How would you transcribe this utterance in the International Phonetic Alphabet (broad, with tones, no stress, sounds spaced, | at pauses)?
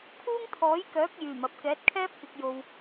kʰ uː˥ ŋ t̪ʰ ɔː˨˥ j k œː˨˥ k̚ j yː˨˩ m ɐ˨ p̚ k ɛː˨˥ t̚ kʰ ɛː˥ p̚ k ɪ˨ k̚ j o˨ w